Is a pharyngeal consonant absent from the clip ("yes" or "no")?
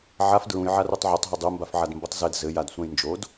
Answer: no